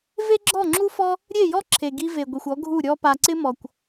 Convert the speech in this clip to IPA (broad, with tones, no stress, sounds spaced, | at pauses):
v e˦ ɡ͡ǁ ɔ˦˨ ŋ͡ǁ u˦ f ɔ˦ | ɾʲ e˦˨ j ɔ˦ ǁʰ e˨ ɡ i˧ v e˨ ɡʷ i˨ xʷ ɔ˨˦ ɡʱ u˦˨ ɾʲ ɔ˧ p a˨ ǀ ɪ˦ m ɔ˨ kʷ